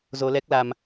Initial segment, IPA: z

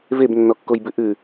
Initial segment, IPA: v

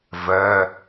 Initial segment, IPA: v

